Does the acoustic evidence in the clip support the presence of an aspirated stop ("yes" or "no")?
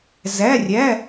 no